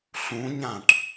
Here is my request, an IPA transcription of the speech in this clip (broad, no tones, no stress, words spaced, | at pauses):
ɬũɲãʈ